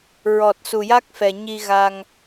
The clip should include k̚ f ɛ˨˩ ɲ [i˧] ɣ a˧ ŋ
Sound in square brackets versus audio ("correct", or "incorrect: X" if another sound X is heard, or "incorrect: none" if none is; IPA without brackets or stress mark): correct